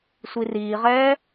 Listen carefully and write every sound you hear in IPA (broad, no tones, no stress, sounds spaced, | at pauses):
sʷ i r iː ʁ ɛː